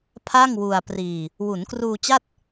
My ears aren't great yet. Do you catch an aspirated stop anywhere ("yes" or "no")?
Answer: yes